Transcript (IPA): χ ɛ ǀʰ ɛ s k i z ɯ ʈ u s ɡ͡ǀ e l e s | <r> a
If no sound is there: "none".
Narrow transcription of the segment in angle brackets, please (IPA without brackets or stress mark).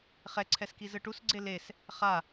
χ